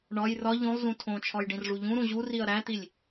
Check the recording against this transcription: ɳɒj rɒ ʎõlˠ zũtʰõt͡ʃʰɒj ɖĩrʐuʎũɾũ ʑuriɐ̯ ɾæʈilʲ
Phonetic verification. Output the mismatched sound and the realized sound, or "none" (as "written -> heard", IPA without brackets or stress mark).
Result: ʈ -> t̪